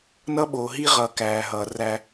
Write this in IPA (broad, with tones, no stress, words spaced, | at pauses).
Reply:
nʌ˦ɓoː˨ɦi˦ʁʌː˨ kæː˨ɦʌː˨ ræ˦